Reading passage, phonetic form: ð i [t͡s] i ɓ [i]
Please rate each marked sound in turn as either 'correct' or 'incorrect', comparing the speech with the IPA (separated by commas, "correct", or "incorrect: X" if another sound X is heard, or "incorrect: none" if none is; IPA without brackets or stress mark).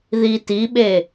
incorrect: t, incorrect: e